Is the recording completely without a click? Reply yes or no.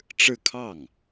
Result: yes